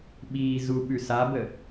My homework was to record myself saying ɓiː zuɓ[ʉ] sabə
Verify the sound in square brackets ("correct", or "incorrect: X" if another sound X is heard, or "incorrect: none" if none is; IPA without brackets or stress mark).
correct